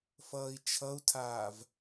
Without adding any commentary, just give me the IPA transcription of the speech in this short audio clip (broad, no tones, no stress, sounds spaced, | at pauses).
f ʌː i̯ t͡ʃʰ ʌ u̯ tʰ aː v